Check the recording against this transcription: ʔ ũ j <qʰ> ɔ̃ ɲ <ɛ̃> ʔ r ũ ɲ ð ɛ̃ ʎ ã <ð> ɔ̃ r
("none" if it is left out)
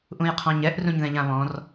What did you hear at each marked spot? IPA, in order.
qʰ, ɛ, β

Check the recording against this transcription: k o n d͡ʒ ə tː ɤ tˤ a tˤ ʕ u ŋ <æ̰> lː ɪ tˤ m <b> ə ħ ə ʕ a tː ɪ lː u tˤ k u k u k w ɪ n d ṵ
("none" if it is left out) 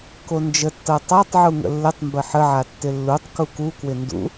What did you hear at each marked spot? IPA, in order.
ə̰, b

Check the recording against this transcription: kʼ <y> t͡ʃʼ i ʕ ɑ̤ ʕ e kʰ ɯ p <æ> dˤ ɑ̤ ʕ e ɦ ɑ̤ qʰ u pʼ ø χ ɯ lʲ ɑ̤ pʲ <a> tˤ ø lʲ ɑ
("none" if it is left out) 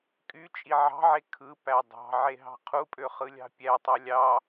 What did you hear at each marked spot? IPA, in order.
y, æ, æ

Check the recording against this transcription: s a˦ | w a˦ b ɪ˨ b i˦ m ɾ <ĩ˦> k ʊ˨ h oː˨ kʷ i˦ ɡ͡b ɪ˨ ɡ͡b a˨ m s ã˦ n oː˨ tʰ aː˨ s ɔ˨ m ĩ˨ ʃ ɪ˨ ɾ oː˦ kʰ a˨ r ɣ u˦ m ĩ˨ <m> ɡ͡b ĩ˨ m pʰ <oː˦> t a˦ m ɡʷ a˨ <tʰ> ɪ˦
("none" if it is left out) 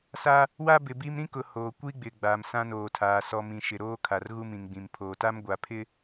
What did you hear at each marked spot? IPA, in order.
ĩ˦, ŋ, oː˨, pʰ

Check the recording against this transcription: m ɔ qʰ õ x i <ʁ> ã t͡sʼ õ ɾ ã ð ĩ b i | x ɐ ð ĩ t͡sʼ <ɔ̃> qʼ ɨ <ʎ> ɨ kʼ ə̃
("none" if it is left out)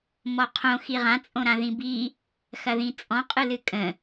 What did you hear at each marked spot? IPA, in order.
ʁ, ɔ̃, l

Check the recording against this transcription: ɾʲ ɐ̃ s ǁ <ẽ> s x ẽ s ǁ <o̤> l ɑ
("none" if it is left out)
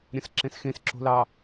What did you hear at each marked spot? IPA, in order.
ẽ, o̤

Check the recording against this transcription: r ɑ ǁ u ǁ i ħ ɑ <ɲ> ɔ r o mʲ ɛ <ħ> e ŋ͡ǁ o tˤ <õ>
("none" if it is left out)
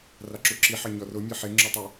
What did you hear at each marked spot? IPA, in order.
ɲ, ħ, o

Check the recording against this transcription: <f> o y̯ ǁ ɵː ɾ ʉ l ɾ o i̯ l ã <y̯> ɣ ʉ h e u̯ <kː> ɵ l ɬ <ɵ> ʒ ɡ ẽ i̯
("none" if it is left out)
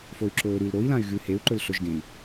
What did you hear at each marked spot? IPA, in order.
f, y̯, ǃ, ɵ

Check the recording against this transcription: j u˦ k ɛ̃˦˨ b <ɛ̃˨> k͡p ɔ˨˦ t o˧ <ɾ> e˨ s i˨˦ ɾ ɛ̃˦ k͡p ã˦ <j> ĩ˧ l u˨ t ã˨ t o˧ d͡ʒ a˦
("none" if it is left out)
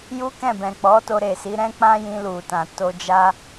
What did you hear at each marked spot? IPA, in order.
ɛ̃˨, ɾ, j

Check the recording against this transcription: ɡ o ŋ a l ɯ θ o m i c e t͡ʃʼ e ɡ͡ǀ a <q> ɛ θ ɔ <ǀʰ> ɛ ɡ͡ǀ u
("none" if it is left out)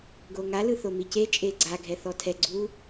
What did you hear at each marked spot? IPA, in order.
ɡʱ, tʰ

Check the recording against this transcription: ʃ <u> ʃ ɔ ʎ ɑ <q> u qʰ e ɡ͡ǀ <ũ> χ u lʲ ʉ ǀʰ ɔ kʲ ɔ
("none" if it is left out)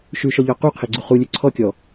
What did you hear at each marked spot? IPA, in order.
ʉ, q, u

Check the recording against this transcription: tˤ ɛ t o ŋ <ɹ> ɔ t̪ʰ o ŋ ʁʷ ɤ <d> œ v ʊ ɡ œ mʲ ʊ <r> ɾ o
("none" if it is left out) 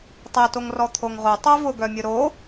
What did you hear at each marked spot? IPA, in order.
r, tˤ, none

